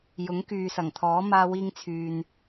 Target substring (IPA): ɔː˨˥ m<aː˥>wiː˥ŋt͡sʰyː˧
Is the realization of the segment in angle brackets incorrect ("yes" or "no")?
no